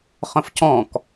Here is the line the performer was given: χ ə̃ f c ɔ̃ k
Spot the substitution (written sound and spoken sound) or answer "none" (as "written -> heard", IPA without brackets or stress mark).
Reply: none